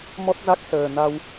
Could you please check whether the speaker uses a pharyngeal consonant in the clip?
no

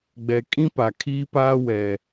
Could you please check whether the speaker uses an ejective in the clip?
yes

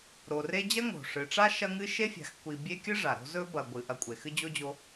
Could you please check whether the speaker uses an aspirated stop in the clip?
no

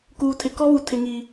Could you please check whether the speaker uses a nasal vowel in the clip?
no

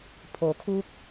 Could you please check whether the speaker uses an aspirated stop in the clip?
yes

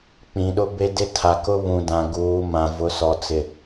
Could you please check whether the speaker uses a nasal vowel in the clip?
yes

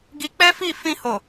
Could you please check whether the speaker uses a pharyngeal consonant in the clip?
no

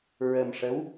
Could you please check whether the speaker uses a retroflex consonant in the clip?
yes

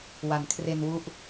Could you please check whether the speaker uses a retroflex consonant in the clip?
no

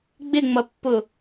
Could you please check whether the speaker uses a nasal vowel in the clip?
no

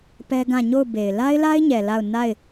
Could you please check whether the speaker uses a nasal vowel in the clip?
yes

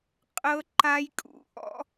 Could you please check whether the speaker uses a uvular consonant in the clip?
yes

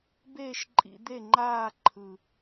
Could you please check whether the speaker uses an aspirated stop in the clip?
yes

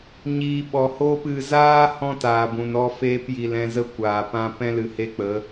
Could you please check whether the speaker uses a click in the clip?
no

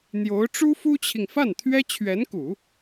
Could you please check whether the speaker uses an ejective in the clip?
no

